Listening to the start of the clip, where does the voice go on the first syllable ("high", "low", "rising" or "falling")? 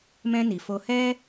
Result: high